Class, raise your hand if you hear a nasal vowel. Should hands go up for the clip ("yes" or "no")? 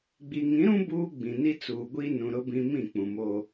yes